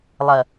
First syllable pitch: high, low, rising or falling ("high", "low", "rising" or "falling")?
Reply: low